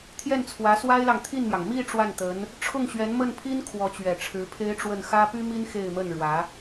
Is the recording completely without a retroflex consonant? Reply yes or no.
no